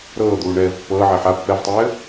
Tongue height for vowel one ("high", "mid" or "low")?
mid